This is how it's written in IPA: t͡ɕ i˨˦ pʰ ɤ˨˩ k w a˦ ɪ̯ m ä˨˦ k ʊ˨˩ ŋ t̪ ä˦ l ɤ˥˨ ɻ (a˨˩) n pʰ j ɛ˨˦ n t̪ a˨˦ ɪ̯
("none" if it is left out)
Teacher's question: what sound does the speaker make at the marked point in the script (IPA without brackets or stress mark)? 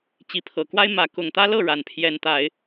a˨˩